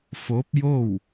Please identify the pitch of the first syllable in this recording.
rising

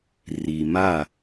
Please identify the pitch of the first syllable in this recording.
low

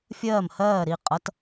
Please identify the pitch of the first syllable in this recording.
falling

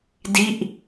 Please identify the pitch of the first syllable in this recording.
falling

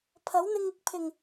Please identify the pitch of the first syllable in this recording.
rising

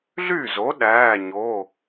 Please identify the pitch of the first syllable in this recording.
falling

